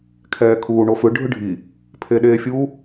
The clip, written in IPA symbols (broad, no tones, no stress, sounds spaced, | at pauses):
kʰ ɛː kʰ uː ɳ o f ɯ ɖʱ ɯ ɖʱ i | pʰ e ɗ eː fʲ u